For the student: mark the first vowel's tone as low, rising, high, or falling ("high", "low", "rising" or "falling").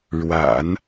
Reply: low